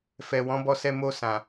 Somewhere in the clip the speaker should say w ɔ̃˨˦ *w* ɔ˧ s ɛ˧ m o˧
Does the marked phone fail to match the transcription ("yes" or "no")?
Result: yes